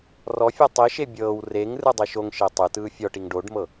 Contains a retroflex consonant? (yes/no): yes